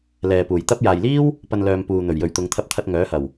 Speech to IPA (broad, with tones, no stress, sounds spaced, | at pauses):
l ɛː˨ p uː˨˩ j t̪ ɐ˥ p̚ j aː˨ j l iː˥ w | p ɐ˨ n l œː˨ m p uː˨ n̪ ɵ˨˩ ɥ j ɵ˨ ɥ t̪ ʊ˨˧ ŋ t̪ʰ ɐ˧ p̚ t̪ʰ ɐ˧ t̚ ŋ œː˨˥ h ɐ˨˩ w